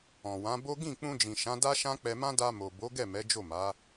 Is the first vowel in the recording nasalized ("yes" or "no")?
yes